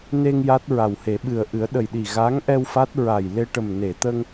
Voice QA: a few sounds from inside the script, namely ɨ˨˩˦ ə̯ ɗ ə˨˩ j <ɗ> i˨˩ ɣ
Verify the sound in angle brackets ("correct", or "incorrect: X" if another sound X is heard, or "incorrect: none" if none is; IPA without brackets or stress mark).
correct